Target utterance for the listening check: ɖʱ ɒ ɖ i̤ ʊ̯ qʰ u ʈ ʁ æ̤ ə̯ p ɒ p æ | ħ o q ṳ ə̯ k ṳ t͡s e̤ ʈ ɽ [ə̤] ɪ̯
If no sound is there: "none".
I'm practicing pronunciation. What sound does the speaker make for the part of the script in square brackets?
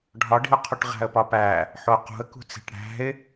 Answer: æ̤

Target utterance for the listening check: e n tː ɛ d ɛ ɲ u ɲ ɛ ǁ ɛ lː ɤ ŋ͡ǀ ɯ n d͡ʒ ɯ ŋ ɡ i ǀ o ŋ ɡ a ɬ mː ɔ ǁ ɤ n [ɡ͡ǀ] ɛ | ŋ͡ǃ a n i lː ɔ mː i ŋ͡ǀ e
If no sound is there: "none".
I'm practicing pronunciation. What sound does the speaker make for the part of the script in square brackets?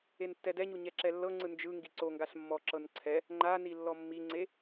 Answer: ǀʰ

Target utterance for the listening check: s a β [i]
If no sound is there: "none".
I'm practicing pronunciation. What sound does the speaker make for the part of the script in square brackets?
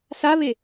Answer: e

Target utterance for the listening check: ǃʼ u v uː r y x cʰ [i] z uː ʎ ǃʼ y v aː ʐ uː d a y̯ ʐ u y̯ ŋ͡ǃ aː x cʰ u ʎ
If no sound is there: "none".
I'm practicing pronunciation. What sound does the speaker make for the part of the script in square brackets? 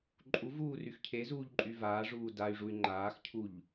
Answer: e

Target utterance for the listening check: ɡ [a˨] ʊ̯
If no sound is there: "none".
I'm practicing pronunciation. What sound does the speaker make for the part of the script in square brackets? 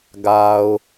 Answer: a˨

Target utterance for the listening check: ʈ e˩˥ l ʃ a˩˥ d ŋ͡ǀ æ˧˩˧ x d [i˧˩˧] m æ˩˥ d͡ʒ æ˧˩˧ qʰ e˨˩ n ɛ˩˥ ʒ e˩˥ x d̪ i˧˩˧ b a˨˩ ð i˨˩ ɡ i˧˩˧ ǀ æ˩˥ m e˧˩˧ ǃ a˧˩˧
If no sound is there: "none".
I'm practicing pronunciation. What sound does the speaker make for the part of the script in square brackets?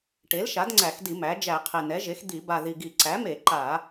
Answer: i˧˩˧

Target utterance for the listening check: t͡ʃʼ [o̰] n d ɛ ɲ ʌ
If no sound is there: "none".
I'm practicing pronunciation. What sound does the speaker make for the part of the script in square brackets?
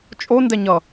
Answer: o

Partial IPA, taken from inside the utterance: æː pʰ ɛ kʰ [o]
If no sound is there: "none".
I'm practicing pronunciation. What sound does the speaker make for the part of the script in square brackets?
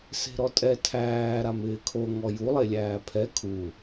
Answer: u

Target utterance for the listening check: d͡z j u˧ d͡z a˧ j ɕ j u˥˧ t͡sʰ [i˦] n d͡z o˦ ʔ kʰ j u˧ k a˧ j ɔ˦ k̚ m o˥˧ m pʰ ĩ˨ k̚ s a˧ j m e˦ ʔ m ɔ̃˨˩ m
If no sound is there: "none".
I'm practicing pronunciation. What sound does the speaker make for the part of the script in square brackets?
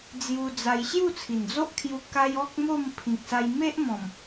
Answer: i˨˩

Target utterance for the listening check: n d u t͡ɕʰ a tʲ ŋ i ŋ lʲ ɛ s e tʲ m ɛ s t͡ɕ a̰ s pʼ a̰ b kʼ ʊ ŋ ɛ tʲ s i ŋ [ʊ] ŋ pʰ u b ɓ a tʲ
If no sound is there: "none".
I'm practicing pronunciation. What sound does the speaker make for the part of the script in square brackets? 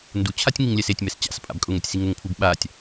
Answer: ʊ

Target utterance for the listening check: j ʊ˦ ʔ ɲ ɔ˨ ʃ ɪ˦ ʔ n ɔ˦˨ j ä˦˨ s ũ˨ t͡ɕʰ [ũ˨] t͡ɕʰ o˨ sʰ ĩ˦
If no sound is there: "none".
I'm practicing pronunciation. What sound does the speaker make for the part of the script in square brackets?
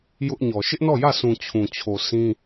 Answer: ũ˨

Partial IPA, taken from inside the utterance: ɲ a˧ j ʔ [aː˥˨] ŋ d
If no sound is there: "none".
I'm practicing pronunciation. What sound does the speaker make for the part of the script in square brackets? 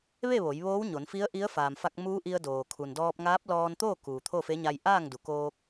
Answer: aː˥˨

